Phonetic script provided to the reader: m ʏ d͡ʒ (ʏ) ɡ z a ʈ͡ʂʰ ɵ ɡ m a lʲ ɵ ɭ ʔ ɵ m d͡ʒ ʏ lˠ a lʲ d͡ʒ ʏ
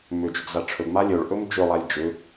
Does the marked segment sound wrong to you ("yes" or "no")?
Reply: no